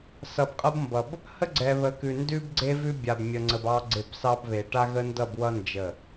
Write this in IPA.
s ʌ˨ b qʼ ʌ˦ b m b ʌ˨ b | h ə˦ ɡ͡ǀ ɛ˨ β ə˨˦ k ʉ˨ n d ʉ˦ b ɡ͡ǀ e˦ v ʉ˦ bʲ a˨ b mʲ ə˨ ŋ͡ǀ ə˨ b ɑ˦ ɡ͡ǀ e˦˨ b s ɑ˦ b β e˨ ʈ a˦ ɣ ə˦ n d ʌ˦˨ b w ʌ˦ n d͡ʒ ə˦˨

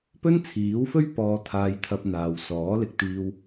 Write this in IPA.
p ɵ˥ n t͡sʰ iː˨˥ w f ɵ˥ ɥ p ɔː˨˧ t̪ʰ aː˧ j t̪ʰ ɐ˧ p̚ n̪ aː˨ w s ɔː˨˥ l ɪ˨ k̚ t̪ iː˧ w

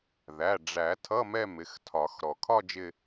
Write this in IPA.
ð æ˩˧˩ ɖ͡ʐ æ˨˩˦ tʰ ʌ˧˥˧ m ɛ˥˧ m ɪ˩˧˩ x tʰ ɒ˨˩˦ x ɾ ɔ˩ kʰ ɒ˥˧ d͡ʒ ɪ˥˧

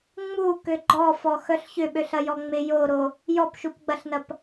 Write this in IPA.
ŋ͡m u k ø ɡ͡ǃ ɔ f ɔ x œ ɬ ç ʏ ɓ ø ɬ ɐ j ɔ ŋ͡m ɪ j o ɾ o | j ɔ p ʃ u p ɡ͡b ɐ ɬ n ɐ p

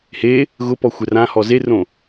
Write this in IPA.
h e | ɣ ʊ p ɔ xʷ ɛ r ã h ɔ z e r õ

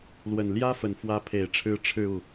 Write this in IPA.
l w ə˨˩ n l j ä˥ f ə˨˩ n f w ä˧˥ pʰ e˨˩ ɪ̯ ʈ͡ʂʰ ɻ̩˧˥ ʈ͡ʂʰ ɻ̩˥˧ u˥˩

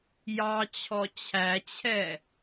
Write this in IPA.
j ɑ t͡ɕʰ ɔ t͡ɕʰ æ t͡ɕʰ ɛ

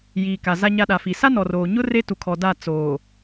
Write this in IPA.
j iː˨ k a˨ z a˦ ɲ a˦ ɗ a˨ f i˨ s a˦ n ɔ˨ r oː˨ ɲ ʊ˦ r e˦ t u˨ kʰ ɔ˨ d a˦˨ t͡s oː˨

